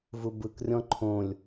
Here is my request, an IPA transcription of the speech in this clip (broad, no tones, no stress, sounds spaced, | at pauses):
v u b ɯ k rʲ ɔ̃ ǃʰ õ lʲ